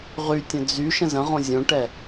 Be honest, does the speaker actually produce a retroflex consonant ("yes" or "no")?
yes